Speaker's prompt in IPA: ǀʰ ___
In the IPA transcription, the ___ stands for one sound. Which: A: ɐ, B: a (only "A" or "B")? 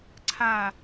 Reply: B